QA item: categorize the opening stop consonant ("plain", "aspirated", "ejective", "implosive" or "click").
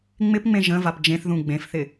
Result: plain